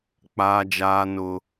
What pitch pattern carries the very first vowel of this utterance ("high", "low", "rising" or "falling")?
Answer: low